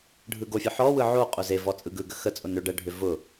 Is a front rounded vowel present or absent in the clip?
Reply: present